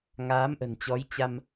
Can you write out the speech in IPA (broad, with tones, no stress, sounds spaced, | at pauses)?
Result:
ŋ aː˨˦ m ʔ ə̤˨˩ n t͡ɕ ɔ˨˦ j t͡ɕ a˧ m